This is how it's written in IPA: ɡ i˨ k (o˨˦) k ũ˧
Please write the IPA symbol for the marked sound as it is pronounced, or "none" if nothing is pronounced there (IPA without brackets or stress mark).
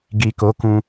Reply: o˨˦